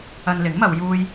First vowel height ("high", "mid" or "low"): low